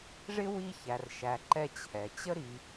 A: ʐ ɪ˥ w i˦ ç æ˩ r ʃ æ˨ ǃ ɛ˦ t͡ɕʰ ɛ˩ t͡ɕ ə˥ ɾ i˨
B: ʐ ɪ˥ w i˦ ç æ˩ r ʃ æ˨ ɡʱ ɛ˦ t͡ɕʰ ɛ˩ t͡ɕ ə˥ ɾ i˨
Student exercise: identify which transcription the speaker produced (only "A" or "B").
A